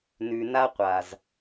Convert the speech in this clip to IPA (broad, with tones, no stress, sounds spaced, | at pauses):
n ʉ˨ n a˦ qʷ a˨ z